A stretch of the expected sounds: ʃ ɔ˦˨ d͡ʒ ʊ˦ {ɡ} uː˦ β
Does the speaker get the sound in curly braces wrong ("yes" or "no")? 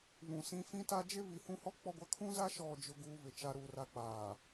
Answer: no